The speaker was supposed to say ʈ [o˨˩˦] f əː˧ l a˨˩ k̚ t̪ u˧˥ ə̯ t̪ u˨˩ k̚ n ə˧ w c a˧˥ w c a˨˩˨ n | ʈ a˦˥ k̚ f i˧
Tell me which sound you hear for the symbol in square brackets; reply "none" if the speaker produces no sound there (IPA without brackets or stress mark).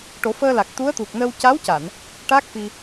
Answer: o˨˩˦